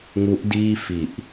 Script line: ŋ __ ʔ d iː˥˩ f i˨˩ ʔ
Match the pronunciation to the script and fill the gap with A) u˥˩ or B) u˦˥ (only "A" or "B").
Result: B